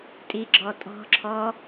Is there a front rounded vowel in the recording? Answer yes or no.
no